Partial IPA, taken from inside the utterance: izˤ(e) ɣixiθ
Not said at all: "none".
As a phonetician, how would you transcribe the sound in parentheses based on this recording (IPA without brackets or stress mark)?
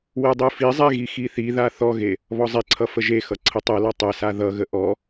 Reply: e